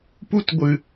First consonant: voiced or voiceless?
voiceless